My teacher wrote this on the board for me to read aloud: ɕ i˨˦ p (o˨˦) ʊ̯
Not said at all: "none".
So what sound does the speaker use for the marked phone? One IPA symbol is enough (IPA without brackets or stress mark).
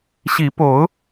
o˨˦